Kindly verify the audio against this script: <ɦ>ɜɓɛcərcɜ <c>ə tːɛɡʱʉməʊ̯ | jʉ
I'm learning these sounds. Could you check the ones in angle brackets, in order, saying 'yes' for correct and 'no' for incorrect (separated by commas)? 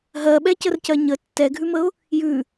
yes, no